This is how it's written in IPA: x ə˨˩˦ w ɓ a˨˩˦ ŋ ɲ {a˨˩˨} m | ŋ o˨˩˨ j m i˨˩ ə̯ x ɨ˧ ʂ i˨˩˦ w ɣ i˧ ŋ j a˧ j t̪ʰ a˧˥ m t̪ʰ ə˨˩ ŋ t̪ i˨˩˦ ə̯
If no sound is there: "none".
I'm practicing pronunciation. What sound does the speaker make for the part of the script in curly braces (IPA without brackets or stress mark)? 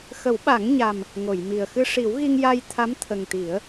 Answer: a˨˩